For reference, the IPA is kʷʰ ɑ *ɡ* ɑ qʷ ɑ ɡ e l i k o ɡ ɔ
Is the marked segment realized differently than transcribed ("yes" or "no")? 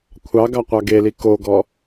no